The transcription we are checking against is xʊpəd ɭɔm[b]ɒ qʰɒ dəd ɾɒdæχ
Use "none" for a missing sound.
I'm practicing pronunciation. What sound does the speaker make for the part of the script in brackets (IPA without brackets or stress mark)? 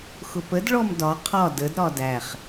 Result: d